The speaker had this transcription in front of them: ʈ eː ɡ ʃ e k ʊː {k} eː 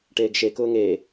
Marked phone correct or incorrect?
incorrect